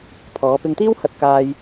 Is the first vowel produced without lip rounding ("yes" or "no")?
no